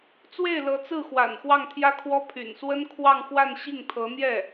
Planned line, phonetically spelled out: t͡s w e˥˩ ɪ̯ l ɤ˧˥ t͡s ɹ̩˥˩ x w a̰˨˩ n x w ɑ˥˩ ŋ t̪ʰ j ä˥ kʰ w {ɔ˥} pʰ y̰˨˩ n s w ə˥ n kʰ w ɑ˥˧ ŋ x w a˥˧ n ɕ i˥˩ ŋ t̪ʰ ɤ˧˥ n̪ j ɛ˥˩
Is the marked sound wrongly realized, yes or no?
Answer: no